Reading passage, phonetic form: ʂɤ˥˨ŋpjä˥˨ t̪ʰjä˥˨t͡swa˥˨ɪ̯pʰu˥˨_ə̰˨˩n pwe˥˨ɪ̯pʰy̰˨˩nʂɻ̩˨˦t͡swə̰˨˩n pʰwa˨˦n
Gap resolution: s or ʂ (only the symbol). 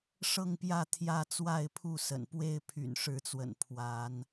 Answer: s